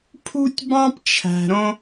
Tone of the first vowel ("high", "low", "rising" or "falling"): high